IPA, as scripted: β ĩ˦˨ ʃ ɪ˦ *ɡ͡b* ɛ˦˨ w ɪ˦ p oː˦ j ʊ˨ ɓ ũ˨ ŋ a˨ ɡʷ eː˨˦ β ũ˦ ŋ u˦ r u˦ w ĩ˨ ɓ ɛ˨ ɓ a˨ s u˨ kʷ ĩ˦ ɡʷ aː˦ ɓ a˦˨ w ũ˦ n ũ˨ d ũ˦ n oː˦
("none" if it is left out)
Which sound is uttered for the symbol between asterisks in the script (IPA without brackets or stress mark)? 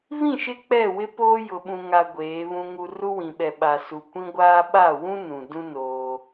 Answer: k͡p